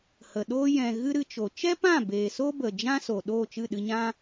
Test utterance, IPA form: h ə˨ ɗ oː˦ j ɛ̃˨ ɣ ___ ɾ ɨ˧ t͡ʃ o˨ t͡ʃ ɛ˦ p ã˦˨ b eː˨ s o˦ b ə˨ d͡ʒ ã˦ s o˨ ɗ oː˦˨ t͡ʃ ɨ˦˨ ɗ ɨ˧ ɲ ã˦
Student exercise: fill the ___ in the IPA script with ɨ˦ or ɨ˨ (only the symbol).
ɨ˦